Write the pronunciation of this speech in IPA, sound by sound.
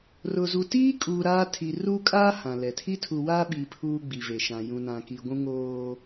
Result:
r ʊ˨ z u˨ t iː˦ kʼ uː˨ ɾ aː˦ tʰ i˨ r uː˦ kʼ aː˦ h ã˨ l ɛ˨ tʰ i˦ tʰ u˨ w aː˦ ɓ iː˨ pʰ uː˦ ɡ͡b i˨ v e˨ ʃ ã˨ j ũ˨ n ã˨ k i˨ ɡʷ ũ˦ ŋ oː˦

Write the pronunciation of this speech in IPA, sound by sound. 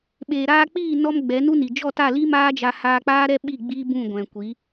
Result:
ɓ eː˨ ɾ aː˧ k͡p iː˦˨ n ɔ˧ m ɡ͡b ɛ˨˦ n u˦ n i˨ d͡ʒ ɔ˦˨ t a˦˨ l i˦ m aː˦ d͡ʒ a˧ h aː˧ k͡p aː˦ ɾ ɛ˦ ɓ i˦˨ ɡ͡b iː˦ b ũ˦˨ ɡʷ ɛ̃˨ kʷ i˨˦

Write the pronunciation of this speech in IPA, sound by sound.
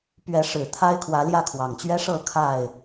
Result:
p ɥ ɛ˨˦ ʂ ɻ̩˨˩ t̪ʰ a˦ ɪ̯ kʰ w ä˨˦ l j ä˥˨ kʰ w ɑ˨˩ ŋ t͡ɕ ɥ ɛ˦ ʂ ɤ˥˨ kʰ a˥˨ ɪ̯

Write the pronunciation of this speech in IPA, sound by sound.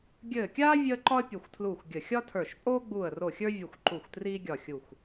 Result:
ɡʲ ɘː˧˩ kʲ aː˥ vʲ əː˥ ǃ ɒ˥ ə̯ pʲ o˧˩ xʷ tʰ l uː˧˩ xʷ ɡʲ ə˧˩ xʲ ɒ˥ tʰ ə˞˧˩ ʃ pʼ oː˥ ɡ͡b uː˧˩ ə̯ r o˧˩ xʲ ə˞˥ vʲ ə˧˩ xʷ ǃ u˧˩ xʷ t r iː˥ ɡʲ ɒ˧˩ xʲ u˧˩ xʷ

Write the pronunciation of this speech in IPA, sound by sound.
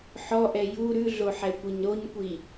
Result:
ħ ɔ ʔ ɛ j u ɾ ʉ ɮ o ħ ɛ kʷ i ɲ ɾ o ɲ kʷ i

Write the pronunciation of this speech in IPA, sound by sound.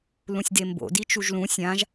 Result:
l ũ sʲ d e m b o̰ d i t͡ʃ u ʒ l ũ sʲ ã ʒ

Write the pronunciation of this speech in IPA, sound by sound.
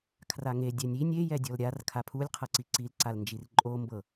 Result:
kʰ r a ŋ e dʲ ɛ nʲ i nʲ e j ɛ dʲ ɔ l ɾʲ a r kʰ a pʰ u lʲ qʰ ɤ ǀ i ǀ i l ǀ a l n d͡ʒ i r ǃʼ o m b ɤ

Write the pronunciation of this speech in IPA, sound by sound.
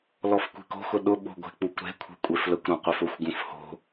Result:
l ɔ f kʷ e̤ k o̤ x ʊ ɗ ʊ ɓ o̤ ɡʷ e̤ k͡p u kʷ ɾ e̤ kʷʰ e̤ kʷʼ e f l ə kʷ ɾ ɔ̃ qʷ e f ʊ xʷ ɡ ũ f h o̤

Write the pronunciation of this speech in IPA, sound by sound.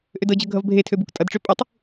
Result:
ʔ ø d ɤ d͡ʑ ɤ ɡʱ ʌ v bʱ e tʰ ø b u k tʼ ʌ d ʈ͡ʂ ø pʼ u tˤ

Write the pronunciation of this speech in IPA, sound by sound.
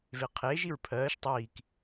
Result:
v e qʰ e ʒ i ɹ pʰ ɜː ʃ tˤ iː k

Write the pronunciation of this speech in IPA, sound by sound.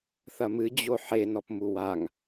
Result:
θ ɐ m ɨ d͡ʑ o ħ e n ɔ p m u w a ŋ

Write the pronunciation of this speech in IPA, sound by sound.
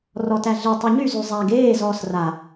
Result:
r ɔ t æ ɮ e tˤ y ɲ y z y zˤ æ ɡ eː z ɔː s r a

